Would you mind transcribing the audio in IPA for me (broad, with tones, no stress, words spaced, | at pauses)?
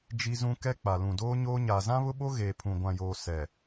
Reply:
d͡ʒi˦zũ˦ kɛ˦k͡pa˨ lũ˨doː˦ɲoː˦ ɲaː˨zã˦βʊ˦ɓo˦ ɣeː˨pʰũ˨ ɡʷã˨joː˨ sɛ˨